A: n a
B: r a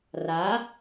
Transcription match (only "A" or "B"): B